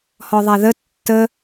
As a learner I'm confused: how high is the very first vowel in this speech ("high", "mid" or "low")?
mid